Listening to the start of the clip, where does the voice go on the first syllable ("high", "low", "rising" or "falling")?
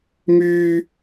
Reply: high